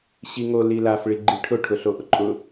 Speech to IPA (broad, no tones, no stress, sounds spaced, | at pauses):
ɕ i ŋ o l i l a f ɭ i ɡ͡ǃ i ʈʰ ʊ ʈʰ ʊ ɬ o ʔ ʊ ǃʼ ʊ